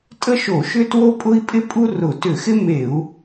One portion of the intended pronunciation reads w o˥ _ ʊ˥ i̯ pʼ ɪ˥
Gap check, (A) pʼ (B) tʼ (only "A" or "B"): A